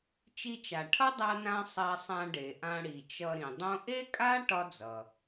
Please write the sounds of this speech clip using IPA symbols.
t͡ʃi˧t͡ʃa˩ʈʰʌ˥ dˤa˧nã˧ sˤa˧sˤã˧ɖe˩ ʔã˧ ɽi˩t͡ʃʌ˧ɾĩ˩dˤõ˥ ʔe˥kʼa˥ ʈɒ˥d͡zʌ˩

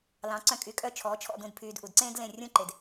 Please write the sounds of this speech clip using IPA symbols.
lɑ̃˩˥ǀœ̃˧ kʼy˩˥kʼœ˥˩ t͡ʃʰɔː˩˥t͡ʃʰɔ̰˥˩dũ˥˩dpʰyː˧d ʔu˩dǀẽː˥d lẽ˥˩rʲũ˥ ǃe˩d

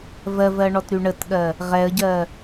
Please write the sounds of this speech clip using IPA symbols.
vɜvɜɳɔtɾy ɳətɠɜ | ʁɛə̯ɟɜ

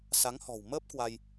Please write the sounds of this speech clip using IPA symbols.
sa˨˦ŋhɔ̤˨˩w məː˦˥p̚kwa˧j

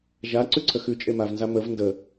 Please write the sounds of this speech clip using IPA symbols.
ʒa ǀʉǀʰəxʉ t͡ʃʼemavnza məv ndə

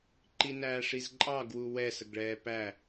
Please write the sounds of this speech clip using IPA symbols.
ǃinæːʂizǃʼɑ ɡwuwɛ səɡɭɛːpæ

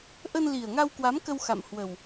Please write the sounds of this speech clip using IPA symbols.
ʔə˧nli˨˩ə̯ŋa˧wkwa˨˦m kə˧wxa̰˧˨mhwə˨˩w

